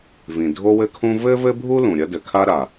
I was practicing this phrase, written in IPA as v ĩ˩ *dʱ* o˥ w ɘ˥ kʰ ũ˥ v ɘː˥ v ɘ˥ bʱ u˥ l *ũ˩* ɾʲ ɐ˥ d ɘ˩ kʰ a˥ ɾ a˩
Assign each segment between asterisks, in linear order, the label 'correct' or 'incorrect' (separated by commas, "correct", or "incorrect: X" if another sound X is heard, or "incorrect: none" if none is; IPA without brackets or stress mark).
correct, correct